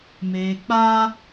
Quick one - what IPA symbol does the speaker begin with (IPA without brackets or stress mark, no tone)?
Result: m